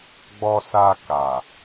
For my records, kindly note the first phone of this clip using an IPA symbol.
ɡ͡b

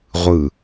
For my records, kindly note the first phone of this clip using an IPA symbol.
ʁʷ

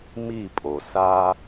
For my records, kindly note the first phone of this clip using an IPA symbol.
m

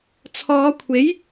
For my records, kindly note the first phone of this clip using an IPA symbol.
t͡sʰ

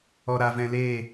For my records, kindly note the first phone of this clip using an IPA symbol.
ɔ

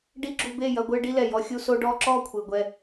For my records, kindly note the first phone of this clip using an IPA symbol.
ɖ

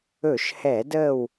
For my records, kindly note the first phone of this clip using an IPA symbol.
ɵ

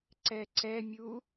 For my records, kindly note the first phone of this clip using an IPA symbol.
ǀ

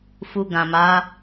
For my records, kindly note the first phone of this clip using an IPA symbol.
f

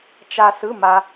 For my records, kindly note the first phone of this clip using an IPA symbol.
t͡ʃ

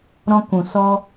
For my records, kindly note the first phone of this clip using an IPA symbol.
ɾ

